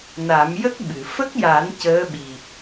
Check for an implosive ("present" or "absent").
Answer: present